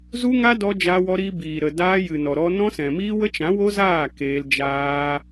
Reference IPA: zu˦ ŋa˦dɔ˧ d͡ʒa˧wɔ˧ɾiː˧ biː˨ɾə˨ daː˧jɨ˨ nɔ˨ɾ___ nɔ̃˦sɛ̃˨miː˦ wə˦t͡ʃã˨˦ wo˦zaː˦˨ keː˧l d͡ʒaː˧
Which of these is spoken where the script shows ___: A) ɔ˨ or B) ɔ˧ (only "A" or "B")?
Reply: B